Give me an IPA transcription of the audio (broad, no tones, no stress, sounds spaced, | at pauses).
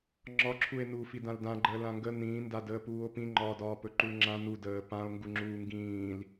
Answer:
ŋ͡ǁ ɒ ǁʰ u e̯ n u f i d ã l d ã ɡ͡ǃ əː l ã ŋ ɡ ə n ĩː n d a d əː p uː o̯ p ĩ ŋ͡ǃ ɒː d ɒː p ɵ ǃ u l ŋ͡ǁ ã n u d əː p ã o̯ ŋ ɡ u ŋ͡ǁ uː ŋ ɡ ĩː l